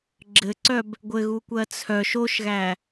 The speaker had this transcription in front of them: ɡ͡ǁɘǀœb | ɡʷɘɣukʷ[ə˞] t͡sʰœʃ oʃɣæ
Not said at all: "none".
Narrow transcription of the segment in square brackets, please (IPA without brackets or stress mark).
ɜ